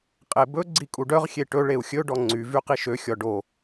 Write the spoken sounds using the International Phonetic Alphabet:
qʼ e b ɵ ɡ͡ǀ i kʼ u ɖ œ ʁ xʲ e ʈ ɵ ɭ e u̯ xʲ ɵ ɖ ɔ ŋ͡ǀ y v y q i ʃ ø xʲ ɔ ɖ o

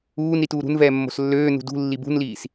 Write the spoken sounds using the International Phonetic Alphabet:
uː n ɾ i t uː ɾ ṳ n v ɛː mː o̤ s lː øː n ṳ d ṳ lː i b ṳ n l iː s

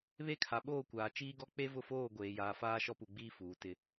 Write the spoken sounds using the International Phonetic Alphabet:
β e˦ kʰ a˨ ɓ oː˦˨ kʷ aː˨ t͡ʃ iː˦ ɡ ɔ˦ k͡p e˦ v ʊ˦˨ f oː˦˨ ɡʷ eː˨ j aː˨ f aː˦ ʃ ɔ˦ p u˨ ɡ͡b iː˦ f uː˨˦ t ɪ˦

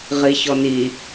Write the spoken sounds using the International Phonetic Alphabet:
ʁ i ç ɔ n i

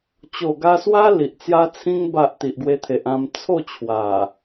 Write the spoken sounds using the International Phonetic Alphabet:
t͡ɕ o˨˩ ɡ a˧ s w a˦ l i˨ ʔ t͡s j a˧ t͡sʰ ĩ˧ ŋ b a˨ ʔ t̪ i˨ ʔ ɡ w e˧ t̪ʰ e˨ ʔ ã˧ m t͡sʰ o˥˧ t͡ɕʰ w a˨˩

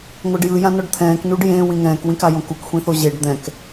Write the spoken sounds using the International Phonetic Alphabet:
ŋʷ ɤ ɖ j ɯ j ã n ɔ ɖ t̪ʰ ɛ̃ː k n u ɖ j ẽ w ĩ ŋ ɛ̃ː k w ĩ k a j õ k u k xʷ ĩ θ o ʑ e ɖ d̪ ɛ̃ k

